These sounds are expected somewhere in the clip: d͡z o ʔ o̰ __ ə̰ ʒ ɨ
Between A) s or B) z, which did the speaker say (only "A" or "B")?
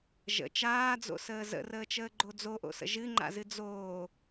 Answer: A